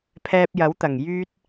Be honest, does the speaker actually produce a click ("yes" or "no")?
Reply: no